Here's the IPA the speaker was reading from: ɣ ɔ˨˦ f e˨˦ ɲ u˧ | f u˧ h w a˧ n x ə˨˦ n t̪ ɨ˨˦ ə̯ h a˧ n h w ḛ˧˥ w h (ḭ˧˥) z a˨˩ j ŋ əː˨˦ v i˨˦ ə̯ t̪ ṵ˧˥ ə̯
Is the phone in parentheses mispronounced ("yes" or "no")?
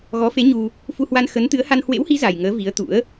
yes